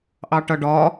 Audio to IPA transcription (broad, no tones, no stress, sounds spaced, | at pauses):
ʔ ɑ ʈ ʌ ɖ ɒ